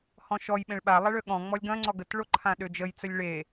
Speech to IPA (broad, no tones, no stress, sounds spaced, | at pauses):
h ɔ̃ ʃ ɔ j ɓ ẽ ɭ ɓ a lˠ ɐ ɭ ø ɠ ɔ̃ ŋ͡m ɔ lʲ ɡ ɐ̃ ŋ͡ǀ ɔ ɡ ə t ɭ o ǃʰ ã ɗ ø d͡ʒ ə j t͡s ə lʲ ɭ e